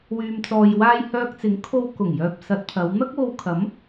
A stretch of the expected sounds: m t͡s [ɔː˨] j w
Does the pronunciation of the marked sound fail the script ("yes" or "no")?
no